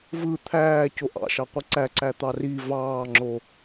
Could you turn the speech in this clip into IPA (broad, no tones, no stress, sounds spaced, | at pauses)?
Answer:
v ɯ t̪ʰ æː c o ʔ ɑ̰ ʃ ɑ qʷ i ǀ æ ǀ æ t̪ ɑ r i v ɑː ŋ͡ǁ o